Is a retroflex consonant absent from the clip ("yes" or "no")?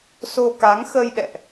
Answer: yes